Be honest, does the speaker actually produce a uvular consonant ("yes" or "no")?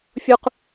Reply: yes